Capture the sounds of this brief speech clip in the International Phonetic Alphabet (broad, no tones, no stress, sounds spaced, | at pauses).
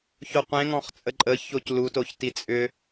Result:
ç o qʷ ẽ ŋ ɔ̃ χ t͡sʼ ə ǃʼ ə ç o c l u t o ç t i t͡sʼ ʏ